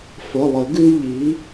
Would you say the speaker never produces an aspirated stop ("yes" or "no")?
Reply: yes